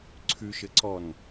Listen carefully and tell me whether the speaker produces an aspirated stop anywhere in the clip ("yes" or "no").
yes